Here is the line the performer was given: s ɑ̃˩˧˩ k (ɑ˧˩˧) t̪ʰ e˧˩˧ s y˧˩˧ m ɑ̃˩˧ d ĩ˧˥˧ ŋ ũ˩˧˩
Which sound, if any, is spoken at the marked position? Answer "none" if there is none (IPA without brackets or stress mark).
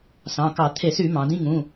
ɑ˧˩˧